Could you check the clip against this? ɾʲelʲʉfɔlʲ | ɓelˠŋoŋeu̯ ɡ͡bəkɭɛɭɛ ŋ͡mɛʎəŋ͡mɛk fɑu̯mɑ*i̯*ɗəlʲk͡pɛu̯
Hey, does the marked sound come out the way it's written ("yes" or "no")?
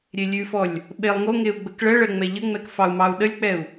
no